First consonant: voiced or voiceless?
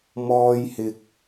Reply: voiced